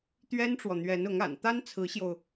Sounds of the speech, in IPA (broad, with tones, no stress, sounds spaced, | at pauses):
t̪ ɥ ɛ˥ n ʈ͡ʂ w ɔ˨ n̪ ɥ ɛ˧˥ n ʊ˧˥ ŋ a̰˨˩ n t̪ a˥ n t͡sʰ ɹ̩˧˥ ɕ j o˧ ʊ̯